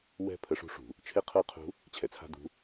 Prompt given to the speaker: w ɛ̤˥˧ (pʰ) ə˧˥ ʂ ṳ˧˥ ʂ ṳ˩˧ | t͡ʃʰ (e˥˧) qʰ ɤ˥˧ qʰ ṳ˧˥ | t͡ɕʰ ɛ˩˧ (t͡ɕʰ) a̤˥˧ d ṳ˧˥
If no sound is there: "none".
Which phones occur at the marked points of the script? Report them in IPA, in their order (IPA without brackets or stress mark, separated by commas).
pʰ, e˥˧, t͡sʰ